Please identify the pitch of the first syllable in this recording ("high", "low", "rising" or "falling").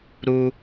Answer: high